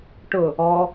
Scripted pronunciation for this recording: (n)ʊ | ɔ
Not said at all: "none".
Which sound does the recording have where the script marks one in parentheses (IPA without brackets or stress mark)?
ʈ